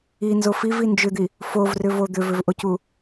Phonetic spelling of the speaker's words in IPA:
inzo fivi nd͡ʒʏd̪i | fovrʏvo d̪ʏvʏvʔocu

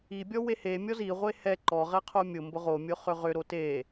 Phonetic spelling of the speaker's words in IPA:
ibʲɔ wehe mʲɔzi ʁʷehɛ ǃɔʁɛ qʰomʲʊmbʊ ʁo mʲʊχʏʁʏ ɾote

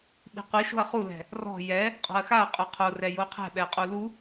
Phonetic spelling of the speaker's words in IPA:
ɓi̤qʷi ʃo̤ɐ̯χulɛ̤ | rɔ̤ jɛ | qʼɔ̤ɐ̯xaɐ̯ qʼuqʰorɛ joqʰɛ̤ ɓɛqʼulu

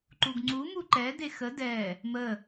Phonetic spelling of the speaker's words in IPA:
ǃuɡŋ͡ǀu muǃɛ dexə dɛ | mə

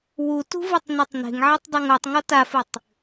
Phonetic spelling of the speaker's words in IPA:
wutṳvɨtˤnɘtˤ ne̤ŋʕɛtˤdˤuŋ otˤŋɔ tafɨtˤ

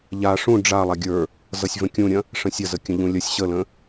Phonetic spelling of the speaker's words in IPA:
ʎa ʂũ ɖ͡ʐa lˠaɡʲə˞ | zʌsʲvə̃kʲũɾʲɐ̃ | ʂə̃sʲɐzə kʲə̃ʎũlʲɐsʲ ɕələ̃

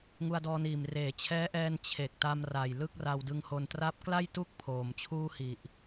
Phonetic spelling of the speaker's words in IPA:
ŋu˧a̯dɔː˧niː˨˩m reː˩˦t͡ɕʰɛː˦˥ʔɛː˧n t͡ɕʰe˨˩k̚ta˧mra˨˩j lɯ˥˩k̚ra˧wdɯ˧ŋho˧n tra˦˥p̚ kla˥˩jtu˥˩k̚ pʰoː˨˩mt͡ɕʰuː˥˩hi˨˩ʔ

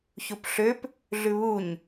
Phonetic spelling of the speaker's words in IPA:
çupɬøp | ɮʉβuɲ

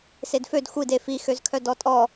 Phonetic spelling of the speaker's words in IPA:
sedfød xʷide fixøzkʰœ dɔtʼɔ

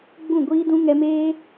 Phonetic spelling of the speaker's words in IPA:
ɡ͡bũ˦˨ɡʷiː˦dũ˦ ŋɛ˧meː˦

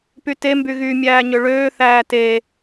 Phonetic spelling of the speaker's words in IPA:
pyte mbyɣy mʲæːɲøɭøː θæːte

